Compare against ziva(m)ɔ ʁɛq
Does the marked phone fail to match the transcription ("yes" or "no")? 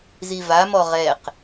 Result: no